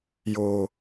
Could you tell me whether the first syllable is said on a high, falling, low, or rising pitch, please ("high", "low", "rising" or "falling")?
low